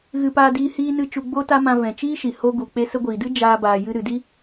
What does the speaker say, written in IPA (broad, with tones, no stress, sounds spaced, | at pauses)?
ɣ ɨ˧ p aː˧ d iː˧ h iː˧ n ɨ˧ t͡ʃ u˧ ɡ͡b o˦ t a˦ m ã˧ v ɛ̃˨ t͡ʃ iː˦ ʃ i˨ h o˧ ɡ u˨ k͡p e˧ s ə˧ ɡʷ iː˨ d ɨ˦ d͡ʒ aː˦ b aː˧ j ɨ˦ ɾ ɨ˨ d i˦